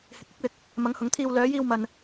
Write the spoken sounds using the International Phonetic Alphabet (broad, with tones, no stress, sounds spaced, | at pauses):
h ɪ˨ k̚ ɪ˨˥ k̚ w ɪ˨ k̚ | m ɐ˨˧ ŋ h ʊ˨˥ ŋ t̪ʰ iː˧ w l œː˨˧ j iː˧ w m ɐ˨ n